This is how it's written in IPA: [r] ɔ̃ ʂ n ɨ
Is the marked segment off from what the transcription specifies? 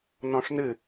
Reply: yes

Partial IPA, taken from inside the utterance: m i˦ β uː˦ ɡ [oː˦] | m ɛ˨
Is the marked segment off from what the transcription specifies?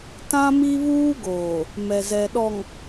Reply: yes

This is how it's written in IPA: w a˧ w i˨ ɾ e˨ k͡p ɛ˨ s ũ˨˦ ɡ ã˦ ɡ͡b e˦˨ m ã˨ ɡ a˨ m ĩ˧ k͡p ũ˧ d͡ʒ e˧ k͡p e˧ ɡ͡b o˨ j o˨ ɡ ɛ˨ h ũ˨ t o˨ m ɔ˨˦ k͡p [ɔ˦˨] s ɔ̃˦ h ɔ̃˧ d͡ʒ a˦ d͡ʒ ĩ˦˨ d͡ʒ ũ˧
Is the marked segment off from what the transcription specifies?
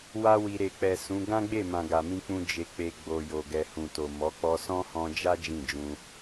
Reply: yes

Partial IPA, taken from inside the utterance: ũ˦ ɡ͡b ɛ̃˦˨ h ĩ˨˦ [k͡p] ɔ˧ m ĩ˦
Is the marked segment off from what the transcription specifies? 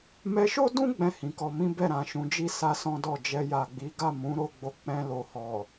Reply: yes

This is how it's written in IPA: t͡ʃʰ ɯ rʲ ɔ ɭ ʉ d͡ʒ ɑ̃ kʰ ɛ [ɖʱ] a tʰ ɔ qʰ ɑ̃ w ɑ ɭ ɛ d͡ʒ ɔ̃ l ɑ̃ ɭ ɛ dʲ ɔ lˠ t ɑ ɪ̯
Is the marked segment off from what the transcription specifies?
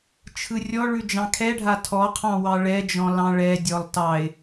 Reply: no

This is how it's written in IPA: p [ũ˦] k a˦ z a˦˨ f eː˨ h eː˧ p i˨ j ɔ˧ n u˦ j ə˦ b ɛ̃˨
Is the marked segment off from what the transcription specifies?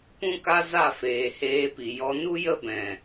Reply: no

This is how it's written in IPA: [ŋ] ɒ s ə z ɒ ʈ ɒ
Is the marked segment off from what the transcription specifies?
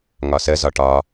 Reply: no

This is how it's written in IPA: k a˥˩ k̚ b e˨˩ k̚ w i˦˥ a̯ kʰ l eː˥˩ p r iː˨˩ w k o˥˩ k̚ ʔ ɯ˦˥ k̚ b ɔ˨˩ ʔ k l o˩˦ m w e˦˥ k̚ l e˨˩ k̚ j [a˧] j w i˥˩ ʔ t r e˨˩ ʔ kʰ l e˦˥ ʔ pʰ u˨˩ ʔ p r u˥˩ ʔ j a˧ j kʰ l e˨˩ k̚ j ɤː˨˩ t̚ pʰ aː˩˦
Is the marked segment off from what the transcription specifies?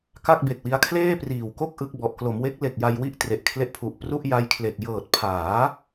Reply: no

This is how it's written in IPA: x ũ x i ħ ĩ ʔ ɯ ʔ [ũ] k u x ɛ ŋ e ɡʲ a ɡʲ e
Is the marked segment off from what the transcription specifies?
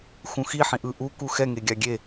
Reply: yes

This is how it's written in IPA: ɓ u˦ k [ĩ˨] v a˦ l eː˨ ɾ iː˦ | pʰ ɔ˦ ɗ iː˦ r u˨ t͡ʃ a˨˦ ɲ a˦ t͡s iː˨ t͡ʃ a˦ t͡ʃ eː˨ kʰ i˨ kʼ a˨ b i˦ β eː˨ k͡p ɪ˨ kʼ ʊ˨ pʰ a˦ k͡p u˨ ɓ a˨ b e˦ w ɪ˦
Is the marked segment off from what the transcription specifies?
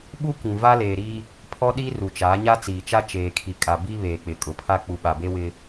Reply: no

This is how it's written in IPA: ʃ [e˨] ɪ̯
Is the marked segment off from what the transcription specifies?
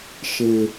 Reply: no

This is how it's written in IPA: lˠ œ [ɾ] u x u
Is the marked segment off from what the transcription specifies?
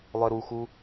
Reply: no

